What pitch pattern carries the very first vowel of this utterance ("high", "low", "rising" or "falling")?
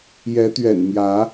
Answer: rising